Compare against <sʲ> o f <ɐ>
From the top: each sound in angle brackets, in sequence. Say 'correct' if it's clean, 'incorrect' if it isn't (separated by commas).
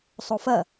incorrect, correct